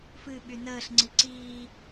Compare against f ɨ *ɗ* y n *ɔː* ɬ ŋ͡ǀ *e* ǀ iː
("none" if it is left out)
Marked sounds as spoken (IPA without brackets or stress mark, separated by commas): ɓ, əː, i